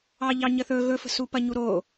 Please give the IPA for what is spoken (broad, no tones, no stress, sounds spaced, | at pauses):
ɑ ʎ ɑ ɲ ə θ ɵ ɣ ɵ f ə̤ s u p ɐ ɲ u ɾ o